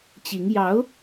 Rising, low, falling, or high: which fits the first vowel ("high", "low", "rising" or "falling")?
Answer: rising